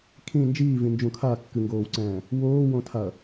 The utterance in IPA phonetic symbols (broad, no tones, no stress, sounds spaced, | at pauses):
kʰ ĩ n d͡ʒ iː v ĩ n d͡ʒ ũ kʰ a kː ɨ ŋ ɡ oː w ǀ ɛ̃ː | w oː w õ tʰ a ɐ̯